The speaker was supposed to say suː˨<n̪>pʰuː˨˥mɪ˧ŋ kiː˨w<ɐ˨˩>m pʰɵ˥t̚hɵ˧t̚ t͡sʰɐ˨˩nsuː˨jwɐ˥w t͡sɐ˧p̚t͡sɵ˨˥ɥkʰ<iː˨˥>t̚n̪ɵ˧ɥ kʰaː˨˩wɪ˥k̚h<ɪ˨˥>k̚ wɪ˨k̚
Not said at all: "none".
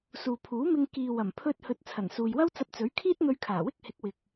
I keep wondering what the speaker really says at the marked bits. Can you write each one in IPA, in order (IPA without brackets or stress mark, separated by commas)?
none, ɐ˨˩, iː˥, ɪ˨˥